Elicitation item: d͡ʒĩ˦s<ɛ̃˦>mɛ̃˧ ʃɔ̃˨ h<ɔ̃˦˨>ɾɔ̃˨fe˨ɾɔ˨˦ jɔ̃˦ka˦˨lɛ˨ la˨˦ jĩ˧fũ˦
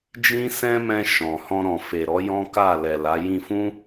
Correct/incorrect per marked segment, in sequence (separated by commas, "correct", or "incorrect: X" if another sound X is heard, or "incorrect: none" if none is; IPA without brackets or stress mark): correct, incorrect: ɔ̃˧